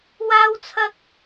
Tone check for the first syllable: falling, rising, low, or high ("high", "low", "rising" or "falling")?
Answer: high